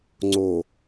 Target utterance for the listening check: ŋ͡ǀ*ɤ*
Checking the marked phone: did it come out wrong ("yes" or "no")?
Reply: yes